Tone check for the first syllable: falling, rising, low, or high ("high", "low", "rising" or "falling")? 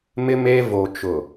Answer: high